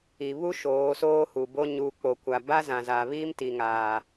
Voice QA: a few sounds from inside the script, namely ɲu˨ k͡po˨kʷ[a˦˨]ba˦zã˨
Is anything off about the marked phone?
yes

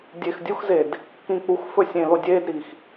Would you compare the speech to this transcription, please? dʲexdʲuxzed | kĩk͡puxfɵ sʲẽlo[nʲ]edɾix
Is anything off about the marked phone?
yes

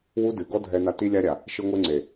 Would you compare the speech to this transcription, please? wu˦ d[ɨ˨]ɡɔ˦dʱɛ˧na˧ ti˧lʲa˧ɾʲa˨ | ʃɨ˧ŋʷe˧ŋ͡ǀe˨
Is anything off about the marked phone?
no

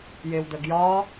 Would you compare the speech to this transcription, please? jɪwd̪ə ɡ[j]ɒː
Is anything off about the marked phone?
no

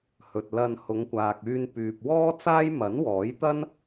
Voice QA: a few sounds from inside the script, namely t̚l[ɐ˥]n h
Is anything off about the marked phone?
yes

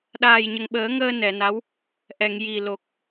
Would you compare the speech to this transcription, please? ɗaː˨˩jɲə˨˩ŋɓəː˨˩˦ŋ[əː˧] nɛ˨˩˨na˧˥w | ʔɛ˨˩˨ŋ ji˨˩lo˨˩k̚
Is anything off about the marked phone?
no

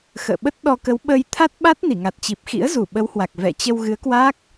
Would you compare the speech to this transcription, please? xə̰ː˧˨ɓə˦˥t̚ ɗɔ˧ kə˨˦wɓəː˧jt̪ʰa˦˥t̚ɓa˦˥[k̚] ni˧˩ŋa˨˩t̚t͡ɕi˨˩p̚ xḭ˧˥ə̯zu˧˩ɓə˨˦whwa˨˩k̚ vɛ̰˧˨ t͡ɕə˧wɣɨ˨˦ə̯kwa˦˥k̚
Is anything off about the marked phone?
yes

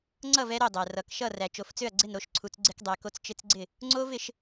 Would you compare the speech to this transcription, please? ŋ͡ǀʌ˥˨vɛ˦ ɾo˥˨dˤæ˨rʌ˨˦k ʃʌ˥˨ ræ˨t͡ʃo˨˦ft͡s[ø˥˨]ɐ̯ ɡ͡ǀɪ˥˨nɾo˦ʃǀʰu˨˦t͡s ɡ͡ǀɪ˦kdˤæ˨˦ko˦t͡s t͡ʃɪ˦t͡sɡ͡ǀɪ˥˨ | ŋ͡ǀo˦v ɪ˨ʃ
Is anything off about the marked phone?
no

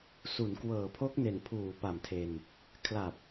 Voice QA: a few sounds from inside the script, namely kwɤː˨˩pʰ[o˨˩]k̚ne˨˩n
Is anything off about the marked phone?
yes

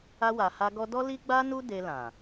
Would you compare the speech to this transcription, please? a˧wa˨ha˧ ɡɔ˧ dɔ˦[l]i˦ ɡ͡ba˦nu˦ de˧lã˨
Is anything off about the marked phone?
no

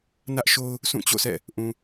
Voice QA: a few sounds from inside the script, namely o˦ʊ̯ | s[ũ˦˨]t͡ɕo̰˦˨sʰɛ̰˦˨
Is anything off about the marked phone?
no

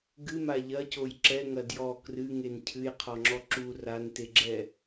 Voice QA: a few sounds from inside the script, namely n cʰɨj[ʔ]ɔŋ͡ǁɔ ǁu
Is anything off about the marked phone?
yes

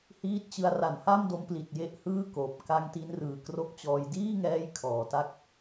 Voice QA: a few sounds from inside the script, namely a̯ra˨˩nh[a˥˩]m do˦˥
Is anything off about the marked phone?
no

